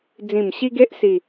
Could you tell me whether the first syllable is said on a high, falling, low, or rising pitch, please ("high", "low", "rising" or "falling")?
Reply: low